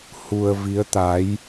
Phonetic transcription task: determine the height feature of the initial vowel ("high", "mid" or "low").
high